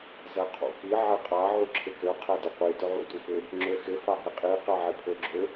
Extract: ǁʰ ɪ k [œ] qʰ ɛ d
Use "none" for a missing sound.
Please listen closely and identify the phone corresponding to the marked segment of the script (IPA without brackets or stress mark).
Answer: ø